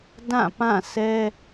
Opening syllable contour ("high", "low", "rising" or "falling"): falling